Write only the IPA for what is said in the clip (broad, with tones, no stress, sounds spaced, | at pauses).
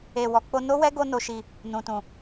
e˨ w ɔ˨ k͡p o˧ n o˦ w ɛ˦ ɡ o˧ n o˨ ʃ i˨ | n ũ˨ t ũ˨